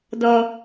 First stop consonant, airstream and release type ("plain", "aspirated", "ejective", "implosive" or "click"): plain